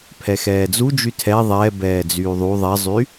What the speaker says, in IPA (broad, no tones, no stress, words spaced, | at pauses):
pʰɛxɛːd͡zud͡ʒy tʰɛ ðˤɛbɛː d͡zyːðˤu ðˤɛzˤy